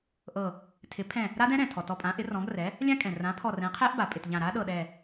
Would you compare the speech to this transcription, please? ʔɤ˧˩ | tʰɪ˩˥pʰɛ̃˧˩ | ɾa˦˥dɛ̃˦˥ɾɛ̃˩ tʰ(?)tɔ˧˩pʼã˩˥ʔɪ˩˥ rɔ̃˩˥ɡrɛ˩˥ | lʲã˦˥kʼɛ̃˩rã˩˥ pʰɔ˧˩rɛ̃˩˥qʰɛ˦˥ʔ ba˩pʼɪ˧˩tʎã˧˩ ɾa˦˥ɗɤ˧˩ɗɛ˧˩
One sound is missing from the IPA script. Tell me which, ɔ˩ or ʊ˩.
ɔ˩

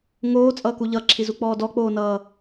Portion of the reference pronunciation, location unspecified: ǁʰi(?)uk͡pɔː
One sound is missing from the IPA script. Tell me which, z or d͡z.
z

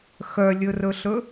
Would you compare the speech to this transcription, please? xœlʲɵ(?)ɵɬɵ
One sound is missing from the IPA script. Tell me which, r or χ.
r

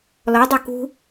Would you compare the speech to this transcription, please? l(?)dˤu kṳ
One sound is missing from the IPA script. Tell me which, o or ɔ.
ɔ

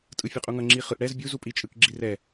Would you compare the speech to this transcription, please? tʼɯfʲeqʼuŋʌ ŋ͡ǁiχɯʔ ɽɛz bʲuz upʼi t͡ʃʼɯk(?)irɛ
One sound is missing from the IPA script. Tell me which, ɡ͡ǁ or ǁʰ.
ɡ͡ǁ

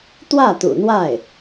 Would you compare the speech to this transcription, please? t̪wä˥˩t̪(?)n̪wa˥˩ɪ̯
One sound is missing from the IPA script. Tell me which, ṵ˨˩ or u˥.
ṵ˨˩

